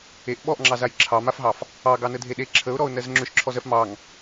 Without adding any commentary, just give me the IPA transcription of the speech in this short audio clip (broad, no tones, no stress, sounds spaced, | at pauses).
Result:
e ʔ ɓ ɔ ʔ ŋ͡ǁ ɑ z a j ǁʰ ɑ m a f ɦ ɑ f | ɑ ɡ ɑ n ə dʱ e ɗ e ǁʰ ə ʊ̯ ɾ ɔ ʊ̯ n ɜ z ŋ͡ǁ ʏ ʃ ǁʰ ɔ z ɜ f m ɑ ŋ